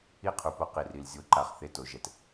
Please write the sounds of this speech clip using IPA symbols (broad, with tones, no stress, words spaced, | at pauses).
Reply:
i˦qʰu˨po˦ qi˨ri˨l zʲo˦ǃa˦χ θe˦to˨˦ʒɛ˨t